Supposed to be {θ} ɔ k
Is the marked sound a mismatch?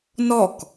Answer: yes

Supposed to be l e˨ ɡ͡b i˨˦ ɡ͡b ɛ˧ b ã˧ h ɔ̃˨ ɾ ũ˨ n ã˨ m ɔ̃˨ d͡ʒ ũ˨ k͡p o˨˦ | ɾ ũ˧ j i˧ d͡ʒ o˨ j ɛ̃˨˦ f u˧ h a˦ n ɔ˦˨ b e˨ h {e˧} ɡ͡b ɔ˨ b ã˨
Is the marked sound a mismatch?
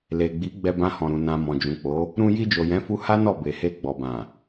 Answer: no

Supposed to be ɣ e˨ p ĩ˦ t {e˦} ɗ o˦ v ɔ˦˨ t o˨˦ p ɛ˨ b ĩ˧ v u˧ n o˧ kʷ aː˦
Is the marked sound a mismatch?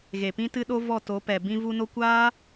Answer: yes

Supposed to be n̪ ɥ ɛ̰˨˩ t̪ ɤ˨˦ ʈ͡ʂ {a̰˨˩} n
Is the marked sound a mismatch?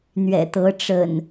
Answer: yes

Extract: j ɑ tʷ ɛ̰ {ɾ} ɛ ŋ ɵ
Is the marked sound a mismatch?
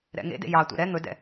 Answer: no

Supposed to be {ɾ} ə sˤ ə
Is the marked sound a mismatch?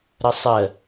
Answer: no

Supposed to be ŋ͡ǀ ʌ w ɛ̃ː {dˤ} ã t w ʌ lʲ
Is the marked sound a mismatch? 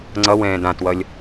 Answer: yes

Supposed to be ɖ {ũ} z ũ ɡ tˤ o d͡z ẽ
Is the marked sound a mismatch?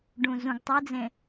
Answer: no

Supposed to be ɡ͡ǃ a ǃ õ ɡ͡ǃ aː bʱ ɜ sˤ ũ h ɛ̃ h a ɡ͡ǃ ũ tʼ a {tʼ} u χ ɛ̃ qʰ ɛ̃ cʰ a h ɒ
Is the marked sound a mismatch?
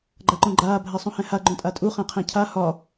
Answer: no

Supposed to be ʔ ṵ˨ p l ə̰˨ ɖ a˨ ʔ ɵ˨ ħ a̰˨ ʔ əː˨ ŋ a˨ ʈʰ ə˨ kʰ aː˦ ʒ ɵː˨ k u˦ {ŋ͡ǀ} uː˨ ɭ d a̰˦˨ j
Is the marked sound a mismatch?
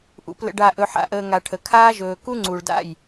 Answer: no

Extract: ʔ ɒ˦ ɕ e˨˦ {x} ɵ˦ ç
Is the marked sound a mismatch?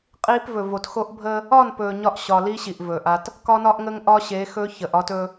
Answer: no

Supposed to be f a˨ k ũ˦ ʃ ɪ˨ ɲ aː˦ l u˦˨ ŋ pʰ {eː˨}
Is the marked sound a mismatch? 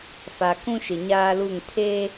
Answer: yes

